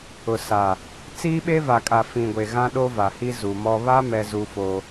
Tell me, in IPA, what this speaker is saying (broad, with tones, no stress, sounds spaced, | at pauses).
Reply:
ʊ˨ s a˨ | t͡s iː˦ ɓ e˦ v a˨ kʼ a˨ f ĩ˨ ɡʷ e˨ ɣ ã˦ ɗ o˦ v a˨ h i˦ z u˨ m ɔ˦ β a˦ m ɛ˦ z u˦ f o˦